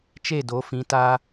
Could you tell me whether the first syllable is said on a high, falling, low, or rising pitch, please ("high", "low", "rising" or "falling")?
falling